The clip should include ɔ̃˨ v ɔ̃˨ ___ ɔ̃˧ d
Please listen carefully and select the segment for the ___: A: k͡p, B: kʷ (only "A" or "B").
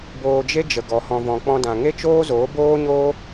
A